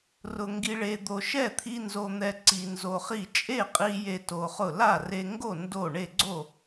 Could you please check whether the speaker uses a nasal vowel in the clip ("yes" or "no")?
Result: no